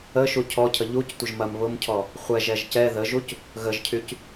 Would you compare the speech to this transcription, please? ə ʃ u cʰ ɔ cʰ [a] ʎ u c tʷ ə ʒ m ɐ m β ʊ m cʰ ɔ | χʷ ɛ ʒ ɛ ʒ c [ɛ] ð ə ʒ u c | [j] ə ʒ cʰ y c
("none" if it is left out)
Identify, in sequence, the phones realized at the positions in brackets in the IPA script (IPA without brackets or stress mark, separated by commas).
ə, ɛ, ɣ